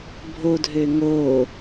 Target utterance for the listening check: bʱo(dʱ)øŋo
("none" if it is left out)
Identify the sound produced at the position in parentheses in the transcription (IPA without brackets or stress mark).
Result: dʱ